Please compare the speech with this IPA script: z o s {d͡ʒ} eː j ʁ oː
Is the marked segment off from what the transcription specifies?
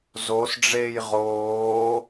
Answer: yes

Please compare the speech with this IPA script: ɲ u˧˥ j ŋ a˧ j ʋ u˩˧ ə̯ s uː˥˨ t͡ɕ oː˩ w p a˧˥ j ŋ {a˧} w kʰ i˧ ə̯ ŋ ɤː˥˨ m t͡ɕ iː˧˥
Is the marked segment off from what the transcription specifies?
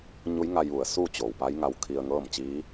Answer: no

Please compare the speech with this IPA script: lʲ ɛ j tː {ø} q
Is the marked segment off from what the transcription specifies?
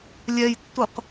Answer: yes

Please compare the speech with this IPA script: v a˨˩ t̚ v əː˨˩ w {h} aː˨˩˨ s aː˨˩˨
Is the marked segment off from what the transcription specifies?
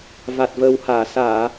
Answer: no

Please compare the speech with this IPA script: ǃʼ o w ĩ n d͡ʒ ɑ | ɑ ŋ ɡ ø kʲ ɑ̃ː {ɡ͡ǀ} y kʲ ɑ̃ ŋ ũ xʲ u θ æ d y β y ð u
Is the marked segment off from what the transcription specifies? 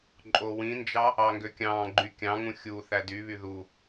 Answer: yes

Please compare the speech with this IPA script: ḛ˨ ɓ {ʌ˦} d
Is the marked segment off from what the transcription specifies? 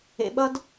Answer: no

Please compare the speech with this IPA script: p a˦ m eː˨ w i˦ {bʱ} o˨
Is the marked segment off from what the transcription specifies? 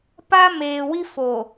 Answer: yes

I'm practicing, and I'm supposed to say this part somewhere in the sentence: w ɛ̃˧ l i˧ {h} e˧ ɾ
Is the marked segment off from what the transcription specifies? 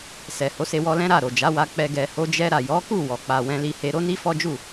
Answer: no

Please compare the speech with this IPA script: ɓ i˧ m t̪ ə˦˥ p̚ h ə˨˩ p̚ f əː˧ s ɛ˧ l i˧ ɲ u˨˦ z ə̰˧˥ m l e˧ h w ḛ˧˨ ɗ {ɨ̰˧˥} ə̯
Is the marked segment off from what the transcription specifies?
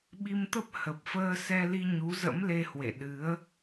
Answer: yes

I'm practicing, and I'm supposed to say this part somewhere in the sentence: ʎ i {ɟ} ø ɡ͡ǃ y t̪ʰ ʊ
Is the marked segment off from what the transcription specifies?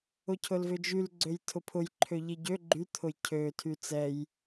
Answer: no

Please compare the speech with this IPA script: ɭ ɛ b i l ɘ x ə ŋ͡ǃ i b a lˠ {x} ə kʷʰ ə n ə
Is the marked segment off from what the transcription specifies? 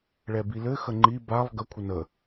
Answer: yes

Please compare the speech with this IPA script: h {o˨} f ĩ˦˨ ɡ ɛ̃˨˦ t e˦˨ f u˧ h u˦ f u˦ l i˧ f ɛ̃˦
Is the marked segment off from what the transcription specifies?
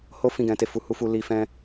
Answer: yes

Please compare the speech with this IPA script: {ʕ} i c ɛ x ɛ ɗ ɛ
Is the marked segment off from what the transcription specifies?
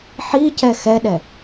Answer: yes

